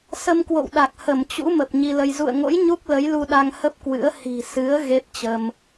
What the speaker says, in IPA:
s ə˧ m k w o̰˧˨ w ɗ a˨˩ k̚ h ə˧˩ m t͡ɕ ṵ˧˥ m ə˨˩ p̚ ɲ i˧ l ə˧ j z ṵ˧˨ ə̯ ŋ o̰˧˥ j ɲ u˦˥ k̚ l ə˨˦ j l u˧ ɗ a˧ ŋ h ə˦˥ p̚ k w ɨ̰˧˥ ə̯ h i̤˨˩ s ɨ˨˦ ə̯ ɣ e˦˥ p̚ t͡ɕ ə˧ m

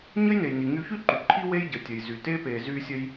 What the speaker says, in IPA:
ɲ ə˥ j n e˩ j n i˩ ŋ y˧ ç y˥ ǃ y˩ ǃʰ i˥ w e˥ j ɟ ə˩ tʲ ə˩ j z y˩ t e˥ p e˧ z y˥ sʲ ə˥ j

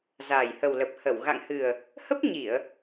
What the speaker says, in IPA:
z aː˨˩ j h ə˨˩ w l ə˨˩ p̚ h ə˧˩ w ɣ a̰˧˨ ŋ h ɨ˨˩ ə̯ | h ə˦˥ p̚ ɲ i˧˩˨ ə̯

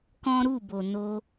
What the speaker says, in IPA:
k ɔ̃˦ ɾ u˦˨ b o˨ n o˧

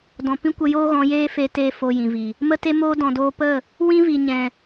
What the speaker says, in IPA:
d ɔ̃˨ p ĩ˦ kʷ ə˧ j oː˦ ɣ ɔ̃˨˦ j eː˦ f e˧ t eː˧ f o˧ j ĩ˨ v i˨ | m ə˦ t e˦ m oː˦ d ɔ̃˨ d oː˧ p ə˦˨ | w ĩ˦ v i˨ ɲ ɛ̃˨

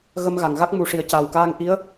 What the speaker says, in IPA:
ɣ ə˧ m ɣ a˨˩˨ ŋ ɣ a˦˥ k̚ m u˨˩ ʂ i˨˩ ə̯ c a˨˩ w k aː˧ ŋ ʔ i˧˥ ə̯

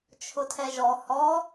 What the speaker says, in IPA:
t͡ʃʰ ʊ tʰ ɛ ʒ ɔ h ɔ

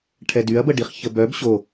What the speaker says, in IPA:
ʈʰ ɛ d y ɐ̯ b ə ɖ i χ ç ə b œ b ɕ o

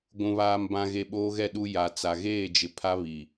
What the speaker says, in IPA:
ɡʷ ũ˨ β aː˨ m b ã˨ ɣ e˨ ɓ oː˦ ɣ ɛ˦˨ ɗ u˦ j a˨ t͡s a˨ ɣ eː˦˨ d͡ʒ ɪ˨ pʰ a˦ β i˨

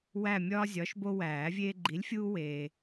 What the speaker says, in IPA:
w æ˦˨ mʲ ɒː˦ zʲ ɒ˨˥ ʃ b o˦ w æː˨˩˦ vʲ eː˦ ɡ͡ǃ i˨˥ lʲ fʲ uː˦ w eː˨

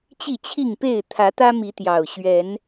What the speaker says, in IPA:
t͡ɕ i˥˨ t͡ɕʰ i˥˨ ŋ p e˥˨ ɪ̯ t̪ʰ ä˨˦ t̪ ä˦ m i˨˦ t̪ j ɑ˨˩ ʊ̯ ɕ ɥ ɛ˨˦ n

